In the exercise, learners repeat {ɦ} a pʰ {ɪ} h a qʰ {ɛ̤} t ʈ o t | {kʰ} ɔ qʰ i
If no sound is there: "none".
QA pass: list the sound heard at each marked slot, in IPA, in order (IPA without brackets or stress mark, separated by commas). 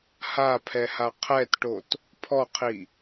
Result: h, ɛ, ɛ, pʰ